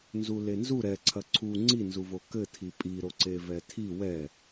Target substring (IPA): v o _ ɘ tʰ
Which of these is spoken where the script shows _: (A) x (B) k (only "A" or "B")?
B